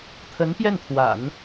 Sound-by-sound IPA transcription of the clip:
t̪ʰ ə˧˥ n p j ɛ˥˩ n t̪ʰ w a̰˨˩˦ n

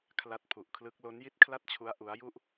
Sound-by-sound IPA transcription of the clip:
kʰ l a˦˥ t̚ pʰ u˨˩ ʔ kʰ l ɯ˦˥ k̚ l o˦˥ n j i˥˩ t̚ kʰ l a˥˩ t̚ t͡ɕʰ u˦˥ a̯ ʔ u˦˥ a̯ j u˥˩ ʔ

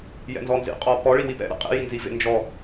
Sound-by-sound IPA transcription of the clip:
j ɛ̰ n z ɔ n z ḭ qʼ ɔ p ɔ ɭ i w i p ɛ̰ ɾ ɛ̰ qʼ ḭ j i n z i v ḛ n d͡ʒ ɔ

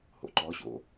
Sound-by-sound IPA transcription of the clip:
h o̰ ǃ ɔ ɕ o̰

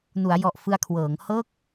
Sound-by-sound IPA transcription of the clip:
n u˩˦ a̯ j ɔ˨˩ ʔ f ɯ˧ a̯ kʰ w ɤː˩˦ ŋ h ɤː˥˩ k̚

